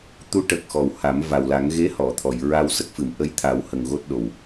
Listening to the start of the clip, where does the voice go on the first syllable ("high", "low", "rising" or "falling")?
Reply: rising